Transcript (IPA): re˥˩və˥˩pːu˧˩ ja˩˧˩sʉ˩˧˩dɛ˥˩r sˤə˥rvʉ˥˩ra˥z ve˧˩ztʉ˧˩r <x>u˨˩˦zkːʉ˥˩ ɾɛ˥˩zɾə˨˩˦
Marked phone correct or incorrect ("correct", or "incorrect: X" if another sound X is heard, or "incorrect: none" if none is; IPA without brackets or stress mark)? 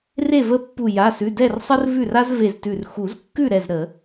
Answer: correct